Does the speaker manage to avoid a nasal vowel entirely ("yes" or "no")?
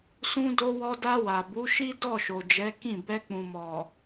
no